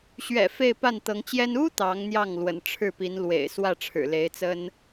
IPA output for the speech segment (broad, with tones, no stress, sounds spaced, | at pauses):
ɕ ɥ ɛ̰˨˩ f e˥˧ ɪ̯ p a˥˩ n t̪ ɤ˧˥ ŋ t͡ɕ j ɛ˥ n u˥ t̪ ɑ˧˥ ŋ n̪ j ɑ˥˩ ŋ l w ə̰˨˩ n ʈ͡ʂʰ ɻ̩˥˩ p i˧˥ n l w ḛ˨˩ ɪ̯ s w ä˥˩ ʈ͡ʂʰ ɻ̩˨˩ l e˧˥ ɪ̯ t͡s ə˥ n